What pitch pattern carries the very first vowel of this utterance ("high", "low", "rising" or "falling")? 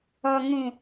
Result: low